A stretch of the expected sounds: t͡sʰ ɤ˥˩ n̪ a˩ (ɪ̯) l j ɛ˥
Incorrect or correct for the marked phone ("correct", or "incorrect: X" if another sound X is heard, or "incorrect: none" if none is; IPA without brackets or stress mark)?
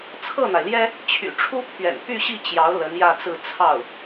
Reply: correct